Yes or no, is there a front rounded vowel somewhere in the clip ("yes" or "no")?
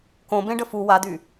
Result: yes